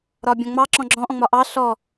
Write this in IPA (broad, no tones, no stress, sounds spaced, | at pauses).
ɾ ɒ bʲ ɔ̃ ŋ͡m ɑ ǁ ɔ̃ ɡ͡ǁ ɔ̃ ʔ ɔ̃ ŋ͡m ɒ ʔ ɑ ɬ ɔ